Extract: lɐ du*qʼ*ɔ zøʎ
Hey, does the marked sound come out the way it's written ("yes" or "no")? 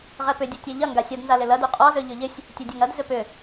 yes